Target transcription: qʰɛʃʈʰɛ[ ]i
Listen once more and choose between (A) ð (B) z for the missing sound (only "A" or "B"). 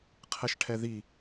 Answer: A